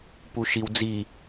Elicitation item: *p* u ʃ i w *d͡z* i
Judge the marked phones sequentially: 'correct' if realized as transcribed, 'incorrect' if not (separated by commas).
correct, correct